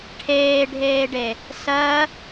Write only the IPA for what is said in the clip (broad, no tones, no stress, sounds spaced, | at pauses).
ʈʰ eː ɖʱ eː ɖ e | s ɜ